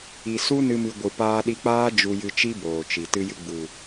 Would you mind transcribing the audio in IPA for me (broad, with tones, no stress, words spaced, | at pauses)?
i˨su˦ nɨ˦mɨ˧ ɡʷɨ˨ paː˧ɗi˧k͡paː˦ d͡ʒu˧jɨ˧t͡ʃi˦ boː˨t͡ʃi˨ tɨ˧jɨ˧ɡ͡bu˨